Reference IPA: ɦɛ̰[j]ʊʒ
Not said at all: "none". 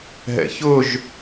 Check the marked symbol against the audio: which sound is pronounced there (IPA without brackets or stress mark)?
ç